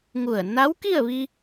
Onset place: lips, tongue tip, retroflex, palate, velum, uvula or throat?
velum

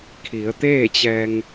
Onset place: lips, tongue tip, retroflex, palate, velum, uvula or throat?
velum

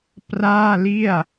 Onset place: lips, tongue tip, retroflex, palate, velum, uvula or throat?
lips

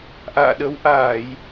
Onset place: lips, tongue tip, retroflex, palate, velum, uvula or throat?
throat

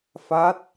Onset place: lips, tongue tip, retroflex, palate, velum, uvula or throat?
lips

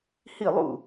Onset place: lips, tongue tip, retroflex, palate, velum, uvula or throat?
throat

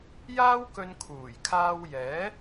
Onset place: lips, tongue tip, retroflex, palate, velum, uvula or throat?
palate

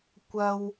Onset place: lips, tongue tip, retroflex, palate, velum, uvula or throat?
velum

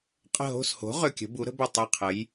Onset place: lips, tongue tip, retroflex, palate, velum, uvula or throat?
uvula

